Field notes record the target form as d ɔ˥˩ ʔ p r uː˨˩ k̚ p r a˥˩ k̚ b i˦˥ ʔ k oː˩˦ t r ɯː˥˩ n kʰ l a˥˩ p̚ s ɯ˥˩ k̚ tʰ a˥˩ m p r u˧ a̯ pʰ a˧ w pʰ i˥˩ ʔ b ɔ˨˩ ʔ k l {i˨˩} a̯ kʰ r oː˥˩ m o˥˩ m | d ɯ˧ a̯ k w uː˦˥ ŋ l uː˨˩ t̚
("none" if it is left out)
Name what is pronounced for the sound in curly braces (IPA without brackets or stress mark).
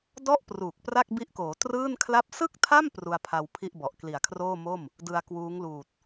i˨˩